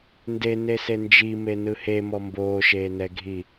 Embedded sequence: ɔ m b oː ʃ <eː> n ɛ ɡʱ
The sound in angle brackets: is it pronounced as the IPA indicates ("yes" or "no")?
yes